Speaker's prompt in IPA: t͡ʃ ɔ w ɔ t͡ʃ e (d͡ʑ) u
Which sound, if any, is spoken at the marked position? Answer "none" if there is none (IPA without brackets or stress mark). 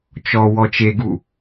ɡ